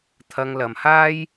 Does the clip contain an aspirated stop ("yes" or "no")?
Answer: yes